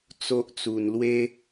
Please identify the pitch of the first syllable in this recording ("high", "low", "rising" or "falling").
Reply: low